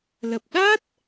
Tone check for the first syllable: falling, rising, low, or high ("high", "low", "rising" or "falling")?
low